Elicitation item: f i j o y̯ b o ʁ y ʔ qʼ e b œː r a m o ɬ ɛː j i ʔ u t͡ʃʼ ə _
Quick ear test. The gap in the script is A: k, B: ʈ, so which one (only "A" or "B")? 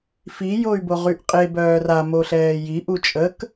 A